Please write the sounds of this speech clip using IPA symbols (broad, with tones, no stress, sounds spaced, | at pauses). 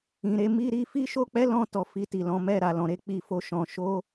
ĩ˨ ɾ e˨˦ m i˦ ɾ i˦ f i˦ ʃ o˦ k͡p ɛ˦ l ɔ̃˧ t ɔ˨ f i˧ t i˨ l ɔ̃˨˦ m ɛ˦˨ ɾ a˨ l ɔ̃˨˦ ɾ e˦ k͡p i˦ f o˦ ʃ ɔ̃˧ ʃ o˦